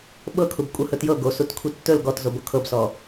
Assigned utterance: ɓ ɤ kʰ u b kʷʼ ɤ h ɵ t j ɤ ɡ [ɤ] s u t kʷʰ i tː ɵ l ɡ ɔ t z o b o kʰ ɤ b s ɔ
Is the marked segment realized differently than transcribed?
yes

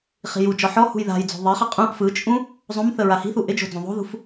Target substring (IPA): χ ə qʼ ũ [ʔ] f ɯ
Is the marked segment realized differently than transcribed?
no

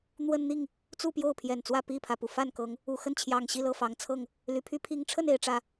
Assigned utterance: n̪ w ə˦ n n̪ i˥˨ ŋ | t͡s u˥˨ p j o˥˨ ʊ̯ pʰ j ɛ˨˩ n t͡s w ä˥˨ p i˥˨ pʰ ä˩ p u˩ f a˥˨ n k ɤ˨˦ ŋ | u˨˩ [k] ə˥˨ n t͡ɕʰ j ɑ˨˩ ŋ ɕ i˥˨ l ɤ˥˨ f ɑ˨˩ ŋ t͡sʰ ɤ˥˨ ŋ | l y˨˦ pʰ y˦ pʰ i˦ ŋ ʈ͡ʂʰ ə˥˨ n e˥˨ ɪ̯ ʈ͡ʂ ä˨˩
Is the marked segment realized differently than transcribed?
yes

